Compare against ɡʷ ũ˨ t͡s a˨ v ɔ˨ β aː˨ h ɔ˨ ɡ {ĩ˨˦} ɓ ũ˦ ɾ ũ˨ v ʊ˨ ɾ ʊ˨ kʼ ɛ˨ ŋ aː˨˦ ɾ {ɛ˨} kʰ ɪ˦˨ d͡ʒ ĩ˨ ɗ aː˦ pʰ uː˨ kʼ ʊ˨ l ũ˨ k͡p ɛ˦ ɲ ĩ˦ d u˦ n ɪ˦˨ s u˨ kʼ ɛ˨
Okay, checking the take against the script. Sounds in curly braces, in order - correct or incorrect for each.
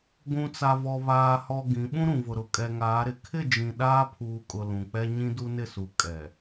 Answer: correct, incorrect

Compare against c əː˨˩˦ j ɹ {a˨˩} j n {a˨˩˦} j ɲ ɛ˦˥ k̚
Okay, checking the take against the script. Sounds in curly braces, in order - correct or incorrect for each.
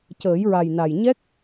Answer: correct, incorrect

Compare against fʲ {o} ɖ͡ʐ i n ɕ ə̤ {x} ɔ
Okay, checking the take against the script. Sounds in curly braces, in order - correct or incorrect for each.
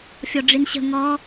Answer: incorrect, incorrect

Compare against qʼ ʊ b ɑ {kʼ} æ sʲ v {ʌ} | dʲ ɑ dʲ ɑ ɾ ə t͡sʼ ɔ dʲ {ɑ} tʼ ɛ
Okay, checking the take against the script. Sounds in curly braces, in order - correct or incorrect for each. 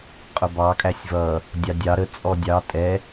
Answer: correct, correct, correct

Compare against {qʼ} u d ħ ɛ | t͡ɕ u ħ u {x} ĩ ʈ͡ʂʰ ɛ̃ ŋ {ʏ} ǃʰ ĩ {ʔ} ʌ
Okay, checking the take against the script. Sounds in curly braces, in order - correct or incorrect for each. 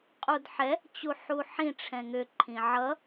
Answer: correct, incorrect, correct, incorrect

